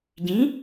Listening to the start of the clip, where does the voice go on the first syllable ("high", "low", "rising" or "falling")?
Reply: rising